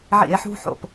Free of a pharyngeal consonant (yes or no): no